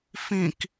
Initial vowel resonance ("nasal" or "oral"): nasal